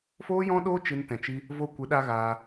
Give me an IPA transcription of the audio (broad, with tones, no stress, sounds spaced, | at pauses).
f oː˦ j ɔ̃˦ ɗ oː˦ t͡ʃ ɨ˦ n t ɛ̃˧ t͡ʃ i˦ | v o˧ kʷ ɨ˨˦ ɗ a˧ ɣ aː˧